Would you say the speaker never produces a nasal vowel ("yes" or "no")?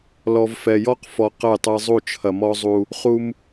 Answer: yes